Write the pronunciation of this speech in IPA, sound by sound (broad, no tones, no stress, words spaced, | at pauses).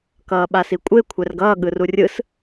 kʌːɓasikʷʼe kʷʰɛrɡʌː ɠɯrurʲɯs